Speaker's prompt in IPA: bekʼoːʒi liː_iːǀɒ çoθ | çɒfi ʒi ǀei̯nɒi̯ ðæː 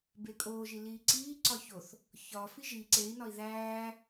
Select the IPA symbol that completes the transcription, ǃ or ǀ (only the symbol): ǀ